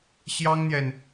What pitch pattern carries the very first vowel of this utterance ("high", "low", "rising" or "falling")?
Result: high